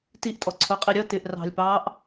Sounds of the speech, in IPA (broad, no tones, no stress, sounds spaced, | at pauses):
t i ʔ tʼ ɔ ǀʰ ʊ qʼ i ɾʲ ʌ t ɪ ʔ r ɑ̤ lʲ p ɑː ʔ